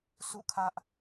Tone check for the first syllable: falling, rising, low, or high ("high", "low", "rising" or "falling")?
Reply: falling